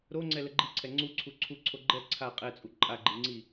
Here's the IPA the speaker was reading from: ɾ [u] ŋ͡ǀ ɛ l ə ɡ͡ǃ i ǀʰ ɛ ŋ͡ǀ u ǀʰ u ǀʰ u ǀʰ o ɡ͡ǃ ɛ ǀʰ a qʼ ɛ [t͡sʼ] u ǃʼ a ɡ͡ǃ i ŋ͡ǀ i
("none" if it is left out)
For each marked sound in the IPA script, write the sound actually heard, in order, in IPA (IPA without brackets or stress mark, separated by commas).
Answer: o, t͡sʼ